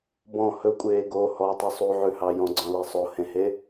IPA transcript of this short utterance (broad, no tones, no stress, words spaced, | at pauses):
bɔ̃ hɵkʷʼeː ɡo hɔtˤʉ sˤuʕʉhɑ jɔ̃ɡ͡ǀɔ̃lɛ sˤohẽhe